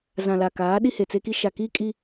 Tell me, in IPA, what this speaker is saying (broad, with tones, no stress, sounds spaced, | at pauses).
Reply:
z ã˨ l a˨ k aː˨˦ ɗ i˦ h e˨ t͡s e˦ k i˦ ʃ a˨ k iː˦ kʼ i˦